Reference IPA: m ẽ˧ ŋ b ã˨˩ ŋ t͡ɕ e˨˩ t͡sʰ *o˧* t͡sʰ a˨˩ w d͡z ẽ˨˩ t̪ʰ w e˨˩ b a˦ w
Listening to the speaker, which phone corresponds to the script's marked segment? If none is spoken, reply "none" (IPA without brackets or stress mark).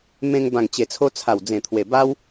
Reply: o˧